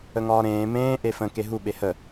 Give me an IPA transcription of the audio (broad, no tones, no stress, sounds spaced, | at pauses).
ə ŋ ɒː ɾ ẽː m ẽː ʔ e f ə̃ k e ɦ u ɓ e h ə